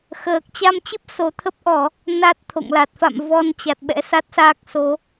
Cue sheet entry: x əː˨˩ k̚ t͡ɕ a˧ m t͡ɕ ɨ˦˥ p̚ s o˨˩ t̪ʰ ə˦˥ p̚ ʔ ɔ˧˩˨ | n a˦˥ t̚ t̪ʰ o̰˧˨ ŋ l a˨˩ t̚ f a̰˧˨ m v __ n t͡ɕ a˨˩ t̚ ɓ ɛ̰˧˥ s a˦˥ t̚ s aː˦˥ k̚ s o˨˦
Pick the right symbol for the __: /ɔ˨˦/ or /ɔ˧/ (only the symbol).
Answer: ɔ˧